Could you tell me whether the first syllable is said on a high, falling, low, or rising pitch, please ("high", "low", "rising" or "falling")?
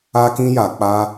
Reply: high